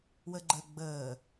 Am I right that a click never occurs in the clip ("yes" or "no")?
no